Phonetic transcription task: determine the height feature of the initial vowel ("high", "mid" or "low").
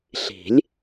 high